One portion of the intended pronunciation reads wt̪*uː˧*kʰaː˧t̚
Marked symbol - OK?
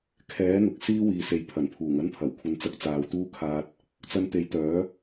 no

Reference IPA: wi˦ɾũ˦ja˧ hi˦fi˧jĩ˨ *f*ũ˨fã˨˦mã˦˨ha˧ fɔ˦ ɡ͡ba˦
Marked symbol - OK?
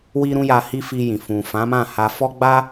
yes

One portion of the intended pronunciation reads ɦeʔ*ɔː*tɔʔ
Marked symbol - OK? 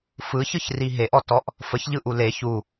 no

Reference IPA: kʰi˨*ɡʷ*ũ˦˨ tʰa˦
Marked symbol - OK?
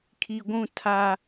yes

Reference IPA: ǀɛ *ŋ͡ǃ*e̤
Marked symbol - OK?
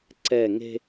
no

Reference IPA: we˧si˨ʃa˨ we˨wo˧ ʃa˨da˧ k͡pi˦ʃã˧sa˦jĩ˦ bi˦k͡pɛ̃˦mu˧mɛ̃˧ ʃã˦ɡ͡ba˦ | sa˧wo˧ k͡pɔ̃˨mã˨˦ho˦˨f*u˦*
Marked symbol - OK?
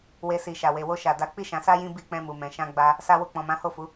no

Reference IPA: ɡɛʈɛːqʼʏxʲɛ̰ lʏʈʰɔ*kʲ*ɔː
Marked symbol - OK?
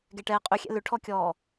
yes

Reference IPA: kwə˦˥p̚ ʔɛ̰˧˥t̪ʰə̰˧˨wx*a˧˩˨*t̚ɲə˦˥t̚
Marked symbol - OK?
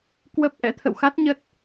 no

